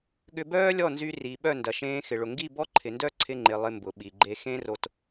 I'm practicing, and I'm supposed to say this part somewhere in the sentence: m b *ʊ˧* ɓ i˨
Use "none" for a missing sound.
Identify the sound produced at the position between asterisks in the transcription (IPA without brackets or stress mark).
ʊ˨